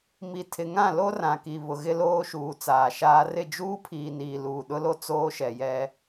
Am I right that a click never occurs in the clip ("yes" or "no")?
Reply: yes